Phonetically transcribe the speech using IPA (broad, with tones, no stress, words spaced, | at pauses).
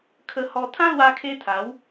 kʰə˧hɔ˧ t̪ʰã˦lwa˧kʰe˧ t̪ʰa˨˦w